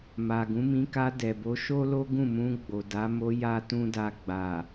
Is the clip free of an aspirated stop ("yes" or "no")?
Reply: yes